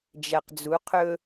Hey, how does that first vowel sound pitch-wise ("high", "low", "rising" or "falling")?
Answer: low